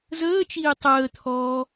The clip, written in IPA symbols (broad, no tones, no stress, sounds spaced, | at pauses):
z əː t͡ʃ iː tˤ əː t̪ʰ ɔː